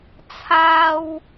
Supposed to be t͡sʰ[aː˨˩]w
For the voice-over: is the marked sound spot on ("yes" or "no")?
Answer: no